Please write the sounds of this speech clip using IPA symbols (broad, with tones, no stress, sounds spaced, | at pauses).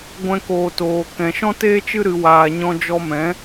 ɡʷ ɛ̃˧ k oː˨ t oː˨ k ɛ̃˨ ʃ ɔ̃˦ t eː˦ t͡ʃ ɨ˦ ɾ ɨ˧ w aː˧ ɲ ɔ̃˧ d͡ʒ ɔ˧ m ɛ̃˨˦